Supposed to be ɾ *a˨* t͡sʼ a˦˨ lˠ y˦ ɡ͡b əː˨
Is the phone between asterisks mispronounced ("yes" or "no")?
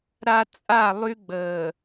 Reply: no